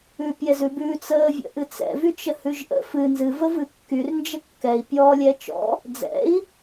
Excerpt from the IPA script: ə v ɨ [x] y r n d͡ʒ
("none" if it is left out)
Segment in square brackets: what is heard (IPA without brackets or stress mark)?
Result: kː